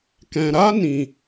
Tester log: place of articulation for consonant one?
velar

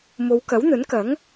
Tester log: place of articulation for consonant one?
labial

